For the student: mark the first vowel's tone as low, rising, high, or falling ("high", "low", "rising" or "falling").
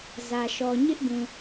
low